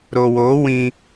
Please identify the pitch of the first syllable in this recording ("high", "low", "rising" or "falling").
low